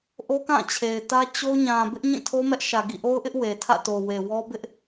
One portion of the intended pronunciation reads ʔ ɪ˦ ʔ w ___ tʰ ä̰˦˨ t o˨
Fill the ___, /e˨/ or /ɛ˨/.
e˨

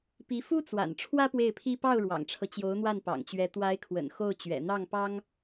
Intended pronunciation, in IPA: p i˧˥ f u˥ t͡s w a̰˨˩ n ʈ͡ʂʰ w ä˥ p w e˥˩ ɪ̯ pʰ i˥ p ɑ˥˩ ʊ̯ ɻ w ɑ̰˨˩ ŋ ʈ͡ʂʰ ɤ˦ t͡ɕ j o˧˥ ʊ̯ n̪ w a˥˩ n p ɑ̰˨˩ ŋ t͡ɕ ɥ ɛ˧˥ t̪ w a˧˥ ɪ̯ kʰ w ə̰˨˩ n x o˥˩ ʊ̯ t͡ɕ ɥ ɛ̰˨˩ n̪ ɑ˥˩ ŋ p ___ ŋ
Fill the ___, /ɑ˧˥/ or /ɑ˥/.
ɑ˥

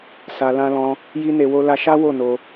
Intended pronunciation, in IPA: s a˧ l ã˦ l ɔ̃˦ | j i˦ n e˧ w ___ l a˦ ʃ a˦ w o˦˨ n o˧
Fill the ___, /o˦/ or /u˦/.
o˦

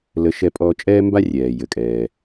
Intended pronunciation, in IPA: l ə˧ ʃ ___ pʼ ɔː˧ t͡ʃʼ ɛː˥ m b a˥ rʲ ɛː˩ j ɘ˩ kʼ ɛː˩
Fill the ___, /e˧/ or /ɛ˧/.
ɛ˧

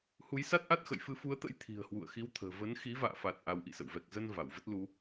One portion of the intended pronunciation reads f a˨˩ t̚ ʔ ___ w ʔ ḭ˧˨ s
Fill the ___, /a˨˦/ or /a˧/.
a˨˦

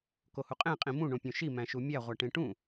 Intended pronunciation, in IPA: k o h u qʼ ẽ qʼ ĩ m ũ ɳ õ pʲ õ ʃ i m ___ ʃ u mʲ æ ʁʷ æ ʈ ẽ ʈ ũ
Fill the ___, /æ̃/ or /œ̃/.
æ̃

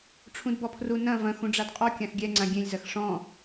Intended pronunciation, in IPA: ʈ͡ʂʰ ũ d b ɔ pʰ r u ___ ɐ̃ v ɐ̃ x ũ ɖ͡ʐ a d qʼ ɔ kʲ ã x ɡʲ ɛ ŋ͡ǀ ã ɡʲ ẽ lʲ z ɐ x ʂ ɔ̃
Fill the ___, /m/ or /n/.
n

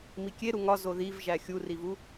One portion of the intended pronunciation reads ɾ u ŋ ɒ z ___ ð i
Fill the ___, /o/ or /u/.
o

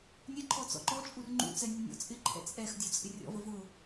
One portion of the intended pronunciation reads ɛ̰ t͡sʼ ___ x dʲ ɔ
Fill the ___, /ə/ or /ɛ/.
ɛ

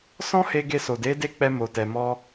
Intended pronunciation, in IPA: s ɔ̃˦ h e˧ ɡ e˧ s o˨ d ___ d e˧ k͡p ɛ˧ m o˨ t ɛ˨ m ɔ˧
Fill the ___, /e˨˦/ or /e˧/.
e˨˦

